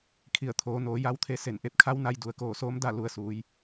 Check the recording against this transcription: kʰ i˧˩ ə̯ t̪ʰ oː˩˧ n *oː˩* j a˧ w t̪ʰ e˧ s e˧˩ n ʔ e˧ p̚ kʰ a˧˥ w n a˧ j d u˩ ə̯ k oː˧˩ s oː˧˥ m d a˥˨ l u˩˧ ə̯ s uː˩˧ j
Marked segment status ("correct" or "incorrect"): incorrect